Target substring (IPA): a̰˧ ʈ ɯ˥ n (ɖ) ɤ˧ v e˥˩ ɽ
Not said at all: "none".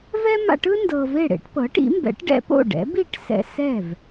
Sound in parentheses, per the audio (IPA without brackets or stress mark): d